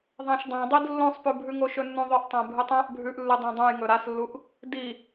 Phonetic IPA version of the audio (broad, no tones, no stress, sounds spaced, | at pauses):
ðˤ ã ʃ dˤ ã dˤ i d lː õ sˤ p ʉ bʱ ʉ ŋ o ʃ ɵ nː ũ ðˤ ɵ ʔ tˤ ã bʱ ɨ tˤ ã ʔ bʱ ʉ ʔ lː ɨ dˤ õ dˤ ũ j ŋ ɵ ɾ a s lː u ʔ | d i